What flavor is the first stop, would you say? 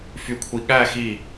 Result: aspirated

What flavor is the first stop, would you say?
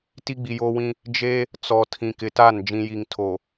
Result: plain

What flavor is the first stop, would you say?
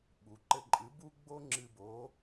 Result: implosive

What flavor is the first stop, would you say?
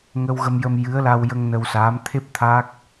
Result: aspirated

